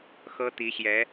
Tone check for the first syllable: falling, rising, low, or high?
high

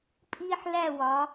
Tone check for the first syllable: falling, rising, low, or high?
high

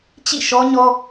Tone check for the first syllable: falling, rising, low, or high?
falling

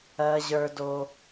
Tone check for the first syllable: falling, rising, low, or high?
high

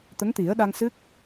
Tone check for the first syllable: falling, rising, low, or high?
rising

